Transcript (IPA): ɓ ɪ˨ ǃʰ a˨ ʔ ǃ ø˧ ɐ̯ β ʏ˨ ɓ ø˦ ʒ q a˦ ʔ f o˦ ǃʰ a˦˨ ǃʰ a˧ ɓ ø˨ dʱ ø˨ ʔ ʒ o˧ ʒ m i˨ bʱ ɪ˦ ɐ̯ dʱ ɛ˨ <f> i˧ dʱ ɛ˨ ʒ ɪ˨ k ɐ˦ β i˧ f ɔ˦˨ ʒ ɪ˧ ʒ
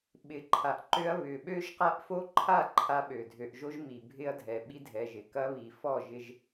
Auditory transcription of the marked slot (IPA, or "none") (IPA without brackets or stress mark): ɓ